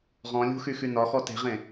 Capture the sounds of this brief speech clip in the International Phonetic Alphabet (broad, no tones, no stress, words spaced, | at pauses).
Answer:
ʁɔ̃lʲṳxyxy nɒxɔ te̤ʁẽ